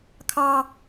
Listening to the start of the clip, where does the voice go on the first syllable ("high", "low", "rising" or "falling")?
high